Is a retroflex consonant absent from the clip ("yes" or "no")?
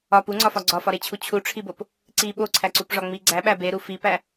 no